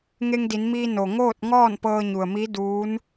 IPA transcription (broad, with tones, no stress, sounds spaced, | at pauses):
ŋ e˧ ŋ d i˩˧ n m iː˧ n o˩ ŋ oː˥˨ t̚ ŋ ɔː˥˨ n p ɤː˧ ɲ u˩ ə̯ m i˧˥ d uː˧˥ n